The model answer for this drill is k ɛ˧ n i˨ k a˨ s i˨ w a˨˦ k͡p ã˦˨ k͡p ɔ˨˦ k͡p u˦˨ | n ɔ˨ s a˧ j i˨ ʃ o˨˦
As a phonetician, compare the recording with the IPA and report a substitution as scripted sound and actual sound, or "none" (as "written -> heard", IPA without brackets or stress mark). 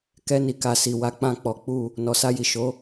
none